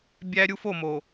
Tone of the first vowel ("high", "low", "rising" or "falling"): high